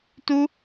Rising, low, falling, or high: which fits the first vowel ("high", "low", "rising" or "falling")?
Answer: high